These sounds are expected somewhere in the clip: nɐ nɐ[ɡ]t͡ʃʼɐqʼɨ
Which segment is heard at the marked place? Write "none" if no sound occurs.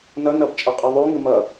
b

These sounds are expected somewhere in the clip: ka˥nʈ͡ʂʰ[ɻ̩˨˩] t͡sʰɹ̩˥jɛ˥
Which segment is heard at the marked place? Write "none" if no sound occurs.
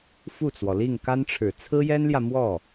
ɻ̩˨˩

